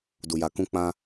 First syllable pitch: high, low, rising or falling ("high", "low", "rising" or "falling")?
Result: low